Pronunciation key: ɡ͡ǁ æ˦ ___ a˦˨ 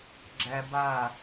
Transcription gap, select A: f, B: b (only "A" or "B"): B